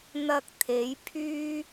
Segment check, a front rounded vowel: present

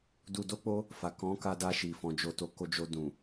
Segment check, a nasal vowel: present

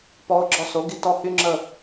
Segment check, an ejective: absent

